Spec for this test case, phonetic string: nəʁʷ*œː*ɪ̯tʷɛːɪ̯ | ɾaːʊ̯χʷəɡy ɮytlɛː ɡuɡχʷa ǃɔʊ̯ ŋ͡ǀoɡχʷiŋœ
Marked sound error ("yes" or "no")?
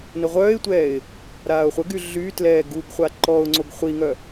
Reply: no